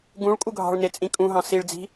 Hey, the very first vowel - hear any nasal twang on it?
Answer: yes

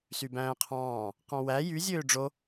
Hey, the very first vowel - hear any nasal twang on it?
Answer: no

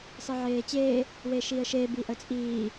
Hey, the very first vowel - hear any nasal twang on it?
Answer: no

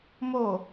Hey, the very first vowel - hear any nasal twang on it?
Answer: no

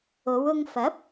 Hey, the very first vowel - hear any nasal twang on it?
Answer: no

